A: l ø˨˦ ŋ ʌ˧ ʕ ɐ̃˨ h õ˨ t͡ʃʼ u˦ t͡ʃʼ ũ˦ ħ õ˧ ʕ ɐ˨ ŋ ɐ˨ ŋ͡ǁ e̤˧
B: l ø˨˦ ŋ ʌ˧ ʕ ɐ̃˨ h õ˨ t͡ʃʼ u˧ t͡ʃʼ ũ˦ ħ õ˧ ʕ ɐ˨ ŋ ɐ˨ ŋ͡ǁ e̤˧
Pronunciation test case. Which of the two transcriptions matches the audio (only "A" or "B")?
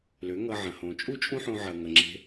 A